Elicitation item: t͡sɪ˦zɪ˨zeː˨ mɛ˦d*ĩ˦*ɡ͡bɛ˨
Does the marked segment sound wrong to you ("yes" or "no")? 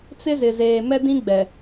no